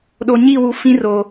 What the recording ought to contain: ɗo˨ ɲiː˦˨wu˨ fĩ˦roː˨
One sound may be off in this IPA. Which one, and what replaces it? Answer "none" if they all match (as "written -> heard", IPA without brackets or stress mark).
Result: none